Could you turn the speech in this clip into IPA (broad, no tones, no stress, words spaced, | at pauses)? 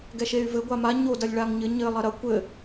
ɡɛʃey̯vɘ ɡʷama ɲo dɐlʲɭaŋɲɘ ɲɘ lˠɐɾɐ kʷɘ